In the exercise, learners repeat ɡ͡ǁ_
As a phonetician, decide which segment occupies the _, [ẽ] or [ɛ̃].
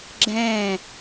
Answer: ɛ̃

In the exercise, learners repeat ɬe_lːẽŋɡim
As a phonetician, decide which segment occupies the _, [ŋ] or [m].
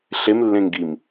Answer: m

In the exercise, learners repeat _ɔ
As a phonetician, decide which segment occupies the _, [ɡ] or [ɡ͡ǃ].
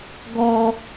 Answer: ɡ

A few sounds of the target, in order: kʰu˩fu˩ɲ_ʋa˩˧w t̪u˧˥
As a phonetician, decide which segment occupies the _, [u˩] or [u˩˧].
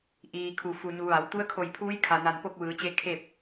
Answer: u˩˧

